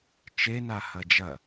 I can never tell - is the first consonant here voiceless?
yes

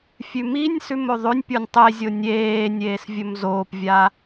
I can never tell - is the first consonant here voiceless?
yes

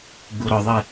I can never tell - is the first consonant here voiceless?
no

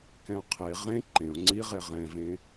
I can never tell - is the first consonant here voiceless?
yes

